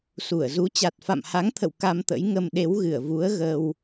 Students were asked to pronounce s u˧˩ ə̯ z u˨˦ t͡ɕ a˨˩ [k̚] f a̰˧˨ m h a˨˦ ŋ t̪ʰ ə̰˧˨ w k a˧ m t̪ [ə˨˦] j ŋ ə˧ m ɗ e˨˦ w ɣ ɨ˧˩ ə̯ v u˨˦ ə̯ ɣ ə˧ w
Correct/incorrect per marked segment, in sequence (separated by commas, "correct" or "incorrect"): incorrect, incorrect